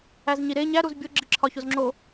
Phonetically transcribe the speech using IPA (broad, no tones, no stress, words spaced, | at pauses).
æzɲiɾe ɲæ ɾuzbʲo ɡ͡ǁiǁʰɒçozŋ͡ǁo